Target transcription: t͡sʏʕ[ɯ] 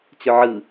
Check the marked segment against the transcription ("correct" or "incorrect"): correct